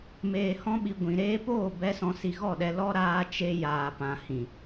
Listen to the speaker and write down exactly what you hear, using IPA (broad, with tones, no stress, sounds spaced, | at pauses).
m eː˨ h ɔ̃˧ ɓ i˨ ɡʷ ĩ˨ ɾ eː˧ p oː˦˨ b ɛ˦ s ɔ̃˧ s i˧ ɣ ɔ˦˨ ɗ ɛ˧ l ɔ˦ ɾ aː˦ t͡ʃ e˦ j aː˨ p ã˨ h ĩ˨